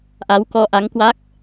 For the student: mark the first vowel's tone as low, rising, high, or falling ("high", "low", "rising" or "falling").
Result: rising